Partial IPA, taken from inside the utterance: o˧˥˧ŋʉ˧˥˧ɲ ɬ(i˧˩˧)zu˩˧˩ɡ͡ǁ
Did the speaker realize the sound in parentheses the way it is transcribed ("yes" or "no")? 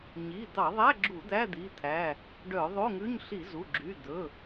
yes